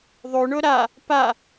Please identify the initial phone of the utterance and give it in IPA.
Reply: ðˤ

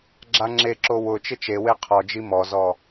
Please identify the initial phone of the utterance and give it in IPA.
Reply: ɡ͡ǁ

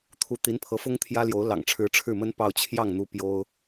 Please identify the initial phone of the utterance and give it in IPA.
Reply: t̪ʰ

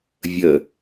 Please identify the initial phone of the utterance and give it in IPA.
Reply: vʲ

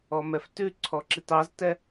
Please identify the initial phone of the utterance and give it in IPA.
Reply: ɔ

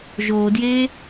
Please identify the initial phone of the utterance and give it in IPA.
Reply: ʒ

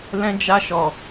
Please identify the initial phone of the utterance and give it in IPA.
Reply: l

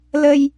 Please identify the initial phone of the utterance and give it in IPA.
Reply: l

